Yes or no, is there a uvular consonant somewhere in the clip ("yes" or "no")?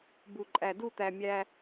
no